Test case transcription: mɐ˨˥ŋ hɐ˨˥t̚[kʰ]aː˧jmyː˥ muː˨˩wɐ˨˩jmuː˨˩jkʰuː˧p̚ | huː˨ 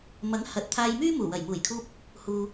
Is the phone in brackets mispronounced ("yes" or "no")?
yes